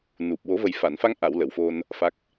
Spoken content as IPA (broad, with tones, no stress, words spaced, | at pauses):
nu˨˩p̚ wo˨˩˦və˨˩jfa˨˩˨nfa˧ŋ ʔa˨˩˨w lə˨˩˨wfo˧n | fa˦˥k̚